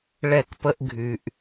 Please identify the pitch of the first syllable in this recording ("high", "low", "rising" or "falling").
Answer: falling